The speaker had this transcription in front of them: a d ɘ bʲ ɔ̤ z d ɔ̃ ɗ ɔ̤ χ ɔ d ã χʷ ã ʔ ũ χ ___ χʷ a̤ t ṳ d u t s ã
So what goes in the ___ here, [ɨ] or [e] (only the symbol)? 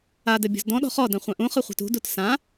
ɨ